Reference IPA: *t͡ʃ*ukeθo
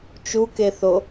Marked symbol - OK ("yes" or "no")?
yes